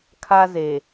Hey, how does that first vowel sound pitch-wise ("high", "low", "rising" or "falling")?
high